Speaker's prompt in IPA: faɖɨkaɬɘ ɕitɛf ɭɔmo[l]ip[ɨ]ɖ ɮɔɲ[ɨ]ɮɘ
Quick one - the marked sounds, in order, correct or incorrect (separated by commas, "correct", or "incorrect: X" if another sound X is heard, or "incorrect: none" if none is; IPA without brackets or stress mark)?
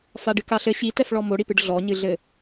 incorrect: ɽ, correct, correct